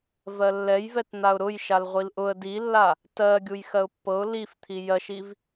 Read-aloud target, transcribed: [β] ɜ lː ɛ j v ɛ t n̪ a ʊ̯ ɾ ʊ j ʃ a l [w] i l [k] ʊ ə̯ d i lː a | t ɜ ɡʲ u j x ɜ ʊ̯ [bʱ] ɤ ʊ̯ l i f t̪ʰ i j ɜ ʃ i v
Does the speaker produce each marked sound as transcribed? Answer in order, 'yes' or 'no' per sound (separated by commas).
no, no, no, no